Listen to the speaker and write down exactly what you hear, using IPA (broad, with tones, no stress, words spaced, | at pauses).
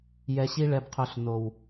jɛ˧ɕi˦ ɭɛ˧bqʰɵ˧ɬ no˨w